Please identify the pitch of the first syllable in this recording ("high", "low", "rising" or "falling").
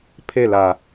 falling